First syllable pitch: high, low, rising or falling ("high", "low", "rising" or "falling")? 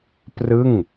falling